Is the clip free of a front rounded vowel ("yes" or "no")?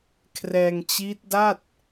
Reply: yes